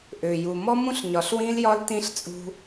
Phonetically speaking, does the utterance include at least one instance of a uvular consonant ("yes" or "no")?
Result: no